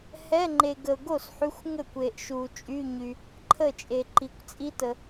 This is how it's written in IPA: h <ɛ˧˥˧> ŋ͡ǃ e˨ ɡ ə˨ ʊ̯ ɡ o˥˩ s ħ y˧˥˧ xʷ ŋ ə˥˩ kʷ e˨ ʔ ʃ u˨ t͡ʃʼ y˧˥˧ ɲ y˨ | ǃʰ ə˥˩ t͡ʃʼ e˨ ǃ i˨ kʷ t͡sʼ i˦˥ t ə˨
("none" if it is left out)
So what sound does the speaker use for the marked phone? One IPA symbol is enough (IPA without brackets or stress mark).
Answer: ɛ˧˥˧